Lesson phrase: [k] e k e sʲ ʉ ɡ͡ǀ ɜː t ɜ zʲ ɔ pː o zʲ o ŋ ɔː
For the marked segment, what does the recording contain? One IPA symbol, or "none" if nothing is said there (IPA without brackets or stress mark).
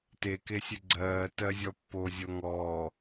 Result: t